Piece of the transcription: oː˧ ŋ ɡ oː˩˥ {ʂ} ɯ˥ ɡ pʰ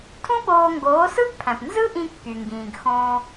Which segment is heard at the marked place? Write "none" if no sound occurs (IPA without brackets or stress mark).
s